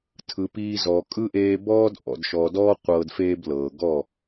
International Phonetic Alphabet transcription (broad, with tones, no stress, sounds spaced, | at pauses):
tʰ ɯ˨ p iː˧ z ɔː˨ kʼ ɯ˦ ʔ eː˧ b ɔː˦ d ʔ ɔ̰˨ d ʃ ɔ˨ d ɔː˦ qʷ ɤː˧ d f eː˦ b l ɤː˨ ɡ ɔ˦˨